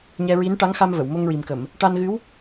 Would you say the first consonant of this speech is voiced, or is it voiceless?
voiced